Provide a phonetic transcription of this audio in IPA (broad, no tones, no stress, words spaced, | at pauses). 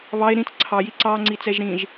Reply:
βɑe̯ ɾĩt͡s ǀʰɑji ǀɑŋ͡ǀit͡sɛʒ ɾĩʒ